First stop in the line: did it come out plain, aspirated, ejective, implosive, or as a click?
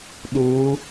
implosive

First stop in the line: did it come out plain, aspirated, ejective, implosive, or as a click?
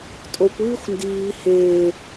ejective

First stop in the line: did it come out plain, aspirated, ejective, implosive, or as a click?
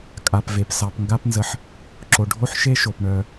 ejective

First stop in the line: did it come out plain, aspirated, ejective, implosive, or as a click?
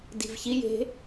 plain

